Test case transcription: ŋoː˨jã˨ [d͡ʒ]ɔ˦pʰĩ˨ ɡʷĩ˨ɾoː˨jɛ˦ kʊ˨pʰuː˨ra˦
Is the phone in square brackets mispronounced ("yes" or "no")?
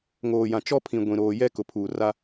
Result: yes